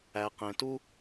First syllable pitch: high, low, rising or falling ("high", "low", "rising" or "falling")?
low